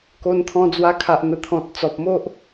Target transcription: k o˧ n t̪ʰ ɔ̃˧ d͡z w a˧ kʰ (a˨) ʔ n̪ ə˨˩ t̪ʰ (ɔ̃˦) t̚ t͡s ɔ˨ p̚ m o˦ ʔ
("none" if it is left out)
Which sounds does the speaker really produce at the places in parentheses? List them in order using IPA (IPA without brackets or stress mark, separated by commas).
a˨, ɔ̃˨